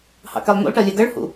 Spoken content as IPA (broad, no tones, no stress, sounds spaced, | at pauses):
h ɑ̰ k ɛ lˠ n̪ ṵ lˠ ʈ ɜ lʲ æ ɡ ɜ ɭ h ṵ